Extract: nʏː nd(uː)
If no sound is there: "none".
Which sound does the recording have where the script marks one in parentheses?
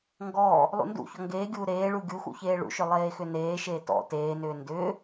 ʏː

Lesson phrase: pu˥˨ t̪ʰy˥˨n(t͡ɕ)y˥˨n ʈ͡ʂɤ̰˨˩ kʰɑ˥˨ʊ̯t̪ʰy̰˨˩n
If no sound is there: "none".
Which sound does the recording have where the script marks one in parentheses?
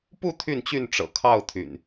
t͡ɕ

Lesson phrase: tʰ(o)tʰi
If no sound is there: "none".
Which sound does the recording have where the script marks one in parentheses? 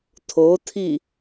o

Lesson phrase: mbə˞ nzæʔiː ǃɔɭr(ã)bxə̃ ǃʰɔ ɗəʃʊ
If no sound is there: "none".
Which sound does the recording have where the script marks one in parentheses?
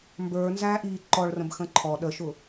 ə̃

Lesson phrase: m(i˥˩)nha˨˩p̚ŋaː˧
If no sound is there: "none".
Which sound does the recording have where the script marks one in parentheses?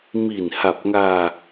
i˨˩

